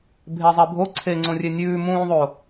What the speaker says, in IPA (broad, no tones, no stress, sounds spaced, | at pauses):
bʱ e zˤ e bʱ o ǀʰ e ŋ͡ǀ õ rʲ e nʲ ʉː m ũː ðˤ o